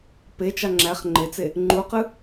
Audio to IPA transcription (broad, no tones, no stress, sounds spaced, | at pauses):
p e t͡ʃ ɑ ŋ͡ǁ æ χ ŋ͡ǃ e t͡s e | ŋ͡ǃ u q ɯ